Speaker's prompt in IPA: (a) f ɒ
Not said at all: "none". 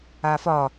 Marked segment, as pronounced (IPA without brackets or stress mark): a